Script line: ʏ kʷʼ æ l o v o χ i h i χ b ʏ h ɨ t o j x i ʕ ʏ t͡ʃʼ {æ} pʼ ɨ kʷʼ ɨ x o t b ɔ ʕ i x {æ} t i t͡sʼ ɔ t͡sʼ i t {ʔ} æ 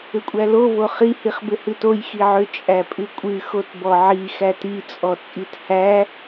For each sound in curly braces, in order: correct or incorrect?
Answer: correct, correct, incorrect

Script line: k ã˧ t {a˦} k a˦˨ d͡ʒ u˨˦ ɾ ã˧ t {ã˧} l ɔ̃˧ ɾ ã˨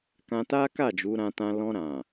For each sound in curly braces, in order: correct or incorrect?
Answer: correct, correct

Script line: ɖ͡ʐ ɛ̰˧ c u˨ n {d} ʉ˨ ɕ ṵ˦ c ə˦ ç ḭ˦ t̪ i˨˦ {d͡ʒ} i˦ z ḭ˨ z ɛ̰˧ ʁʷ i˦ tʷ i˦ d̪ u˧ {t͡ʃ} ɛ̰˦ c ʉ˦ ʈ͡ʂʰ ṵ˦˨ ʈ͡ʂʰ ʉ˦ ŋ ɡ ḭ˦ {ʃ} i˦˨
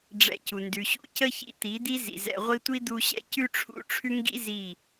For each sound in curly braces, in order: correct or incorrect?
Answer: correct, incorrect, incorrect, incorrect

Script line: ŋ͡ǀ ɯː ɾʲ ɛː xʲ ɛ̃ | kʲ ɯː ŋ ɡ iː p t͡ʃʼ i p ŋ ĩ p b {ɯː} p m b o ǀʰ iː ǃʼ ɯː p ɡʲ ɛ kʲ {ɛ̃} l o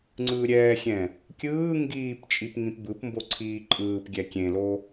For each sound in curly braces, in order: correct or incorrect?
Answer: incorrect, incorrect

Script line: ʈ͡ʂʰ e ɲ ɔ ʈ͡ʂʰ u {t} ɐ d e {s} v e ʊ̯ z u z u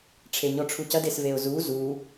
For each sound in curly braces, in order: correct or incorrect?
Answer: incorrect, correct

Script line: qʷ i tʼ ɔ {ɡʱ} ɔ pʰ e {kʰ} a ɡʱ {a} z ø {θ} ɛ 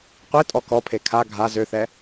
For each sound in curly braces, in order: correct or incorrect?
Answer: incorrect, correct, correct, correct

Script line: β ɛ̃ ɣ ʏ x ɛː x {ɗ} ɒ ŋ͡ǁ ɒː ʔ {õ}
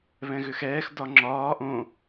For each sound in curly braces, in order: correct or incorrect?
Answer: incorrect, correct

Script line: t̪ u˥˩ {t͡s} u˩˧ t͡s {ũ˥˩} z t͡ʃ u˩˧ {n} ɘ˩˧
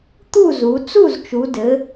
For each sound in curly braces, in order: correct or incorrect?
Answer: incorrect, incorrect, incorrect

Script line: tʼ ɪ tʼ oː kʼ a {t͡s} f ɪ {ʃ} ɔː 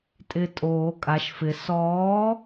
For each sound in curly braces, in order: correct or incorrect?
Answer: incorrect, incorrect

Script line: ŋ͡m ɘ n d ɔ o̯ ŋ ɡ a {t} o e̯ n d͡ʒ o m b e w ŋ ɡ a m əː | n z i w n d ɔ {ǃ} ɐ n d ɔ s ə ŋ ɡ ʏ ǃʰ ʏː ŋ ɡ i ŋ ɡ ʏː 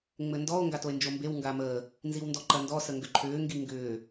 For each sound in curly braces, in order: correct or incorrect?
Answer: correct, correct

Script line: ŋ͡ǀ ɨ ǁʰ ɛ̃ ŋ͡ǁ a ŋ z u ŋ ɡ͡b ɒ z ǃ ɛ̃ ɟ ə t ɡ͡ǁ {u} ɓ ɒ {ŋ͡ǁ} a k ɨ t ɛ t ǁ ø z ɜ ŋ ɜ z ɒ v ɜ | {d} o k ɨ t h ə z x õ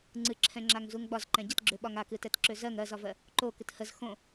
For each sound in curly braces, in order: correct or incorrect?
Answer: incorrect, incorrect, incorrect

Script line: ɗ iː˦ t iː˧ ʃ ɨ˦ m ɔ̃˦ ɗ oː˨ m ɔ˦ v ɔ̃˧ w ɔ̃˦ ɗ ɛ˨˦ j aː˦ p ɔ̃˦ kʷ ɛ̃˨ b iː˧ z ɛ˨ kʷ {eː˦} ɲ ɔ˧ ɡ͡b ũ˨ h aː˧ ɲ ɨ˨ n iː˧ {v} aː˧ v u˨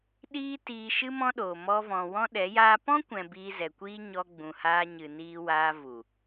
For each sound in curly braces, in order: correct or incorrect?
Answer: incorrect, incorrect

